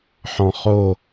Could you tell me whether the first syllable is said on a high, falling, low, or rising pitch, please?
low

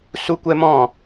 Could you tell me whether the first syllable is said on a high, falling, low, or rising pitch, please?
high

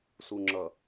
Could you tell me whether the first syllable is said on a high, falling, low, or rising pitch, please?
low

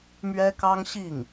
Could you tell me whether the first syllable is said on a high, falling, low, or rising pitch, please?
high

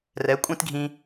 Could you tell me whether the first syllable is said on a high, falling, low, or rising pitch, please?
rising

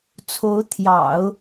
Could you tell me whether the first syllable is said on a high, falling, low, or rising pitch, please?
rising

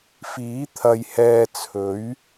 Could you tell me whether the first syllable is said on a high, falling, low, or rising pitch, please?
rising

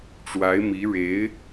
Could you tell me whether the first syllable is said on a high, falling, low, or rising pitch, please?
rising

